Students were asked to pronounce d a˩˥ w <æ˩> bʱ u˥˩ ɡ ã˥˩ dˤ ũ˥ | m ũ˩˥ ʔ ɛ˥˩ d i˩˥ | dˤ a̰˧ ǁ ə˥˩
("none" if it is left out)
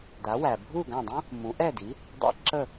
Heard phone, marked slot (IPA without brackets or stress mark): æ˩